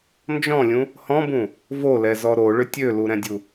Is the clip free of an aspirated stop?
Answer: yes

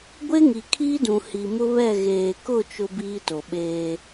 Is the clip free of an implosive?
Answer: no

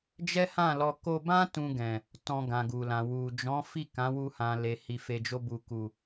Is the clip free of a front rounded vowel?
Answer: yes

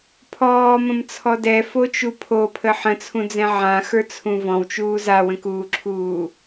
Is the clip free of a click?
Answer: no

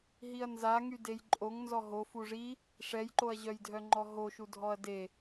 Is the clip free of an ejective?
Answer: no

